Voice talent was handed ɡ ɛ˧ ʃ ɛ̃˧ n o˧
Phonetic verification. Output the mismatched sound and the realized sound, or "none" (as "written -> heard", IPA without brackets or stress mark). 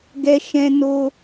none